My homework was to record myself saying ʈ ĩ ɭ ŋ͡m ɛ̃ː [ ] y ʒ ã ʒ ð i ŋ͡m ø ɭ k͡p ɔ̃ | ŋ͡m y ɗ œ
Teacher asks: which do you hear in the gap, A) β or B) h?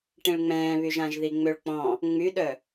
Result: A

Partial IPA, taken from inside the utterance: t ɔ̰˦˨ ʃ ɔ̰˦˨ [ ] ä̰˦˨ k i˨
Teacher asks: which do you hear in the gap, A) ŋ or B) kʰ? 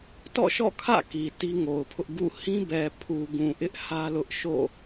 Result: B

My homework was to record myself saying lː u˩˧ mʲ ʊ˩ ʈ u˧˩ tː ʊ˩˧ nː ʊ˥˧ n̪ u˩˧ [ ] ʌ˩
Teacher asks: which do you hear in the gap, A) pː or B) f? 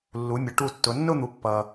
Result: A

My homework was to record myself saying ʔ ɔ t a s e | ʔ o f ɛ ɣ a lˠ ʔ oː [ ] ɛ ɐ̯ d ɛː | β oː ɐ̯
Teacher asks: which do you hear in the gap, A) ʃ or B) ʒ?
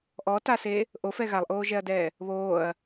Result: B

